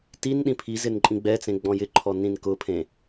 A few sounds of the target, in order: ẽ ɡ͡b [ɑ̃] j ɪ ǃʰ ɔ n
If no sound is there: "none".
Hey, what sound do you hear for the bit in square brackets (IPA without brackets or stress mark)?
ɔ̃